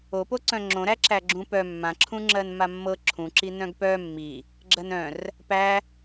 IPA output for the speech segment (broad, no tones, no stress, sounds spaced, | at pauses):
o p o ǀ œ̃ ŋ͡ǁ õ ɾ æ ǁ æ ɡ͡ǁ ũ p œ mː ã ǁʰ ũ ŋ͡ǁ ɜ n m a mː ɤ ǁʰ ũ ǁ i n œ̃ ɡ p œ mː i | ɡ͡ǁ ɜ n œ̃ r | p æ